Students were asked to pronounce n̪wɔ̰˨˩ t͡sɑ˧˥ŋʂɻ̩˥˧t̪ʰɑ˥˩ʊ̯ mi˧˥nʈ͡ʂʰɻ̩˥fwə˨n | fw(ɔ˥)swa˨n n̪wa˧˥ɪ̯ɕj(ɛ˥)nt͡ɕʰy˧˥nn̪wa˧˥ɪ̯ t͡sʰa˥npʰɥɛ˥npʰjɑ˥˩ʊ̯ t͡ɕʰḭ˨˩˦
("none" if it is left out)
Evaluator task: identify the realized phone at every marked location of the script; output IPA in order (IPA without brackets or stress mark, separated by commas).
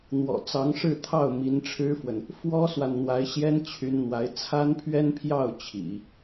ɔ˥, ɛ˥